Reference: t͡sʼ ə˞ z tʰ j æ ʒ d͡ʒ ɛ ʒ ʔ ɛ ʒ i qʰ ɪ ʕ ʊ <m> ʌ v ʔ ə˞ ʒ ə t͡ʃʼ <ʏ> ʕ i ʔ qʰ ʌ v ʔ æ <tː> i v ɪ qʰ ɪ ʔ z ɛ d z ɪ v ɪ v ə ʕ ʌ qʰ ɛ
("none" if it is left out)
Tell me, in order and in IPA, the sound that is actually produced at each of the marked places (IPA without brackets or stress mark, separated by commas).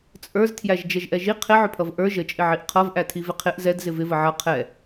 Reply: pʰ, ɪ, tʰ